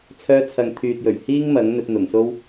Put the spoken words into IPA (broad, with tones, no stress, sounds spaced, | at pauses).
t͡sʰ œː˧ t͡sʰ ɐ˨ ŋ t̪ʰ yː˨ t̚ j ɵ˨˩ ɥ h iː˥ ŋ m ɐ˨˥ ŋ n̪ ɵ˧ t̚ n̪ ʊ˨˩ ŋ s o˥ w